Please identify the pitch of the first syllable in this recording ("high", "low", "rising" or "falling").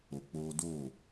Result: low